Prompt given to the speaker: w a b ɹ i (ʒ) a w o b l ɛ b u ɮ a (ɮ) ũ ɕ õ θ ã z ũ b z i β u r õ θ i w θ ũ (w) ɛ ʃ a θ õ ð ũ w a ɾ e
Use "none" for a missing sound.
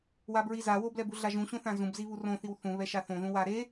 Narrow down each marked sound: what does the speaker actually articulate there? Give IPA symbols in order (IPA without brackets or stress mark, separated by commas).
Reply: z, ʒ, β